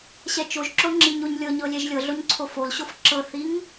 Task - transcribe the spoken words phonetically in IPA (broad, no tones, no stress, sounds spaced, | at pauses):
ɕ ɛ t͡ʃ o ʒ ǁ o ŋ͡ǁ i ɲ o ɲ lʲ ɤ ɲ ɤ lʲ ɛ ʒ lʲ ɤ ɮ o ɲ ǀʰ o f o l ɕ o f ǁ ɤ θ i ŋ